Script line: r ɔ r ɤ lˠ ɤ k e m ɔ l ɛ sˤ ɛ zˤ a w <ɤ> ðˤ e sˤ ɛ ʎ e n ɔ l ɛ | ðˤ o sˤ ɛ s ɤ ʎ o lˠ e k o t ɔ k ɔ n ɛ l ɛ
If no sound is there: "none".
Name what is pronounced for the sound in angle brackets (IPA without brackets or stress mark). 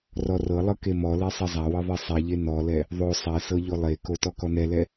ɤ